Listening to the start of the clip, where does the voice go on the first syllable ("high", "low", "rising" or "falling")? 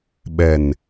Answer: low